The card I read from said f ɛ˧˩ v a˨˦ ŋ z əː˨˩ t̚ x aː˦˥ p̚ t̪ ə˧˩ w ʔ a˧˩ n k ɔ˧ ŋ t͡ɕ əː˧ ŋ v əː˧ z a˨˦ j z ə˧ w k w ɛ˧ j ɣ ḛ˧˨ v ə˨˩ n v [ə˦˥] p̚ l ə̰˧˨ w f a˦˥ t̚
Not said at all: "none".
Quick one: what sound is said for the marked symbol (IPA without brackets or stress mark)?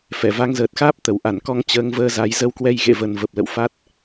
ə˨˩